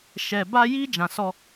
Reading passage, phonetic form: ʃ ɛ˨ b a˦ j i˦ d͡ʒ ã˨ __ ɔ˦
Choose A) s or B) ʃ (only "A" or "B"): A